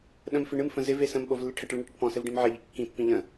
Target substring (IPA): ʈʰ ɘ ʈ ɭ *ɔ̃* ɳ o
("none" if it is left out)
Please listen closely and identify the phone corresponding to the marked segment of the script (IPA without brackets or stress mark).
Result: ə̃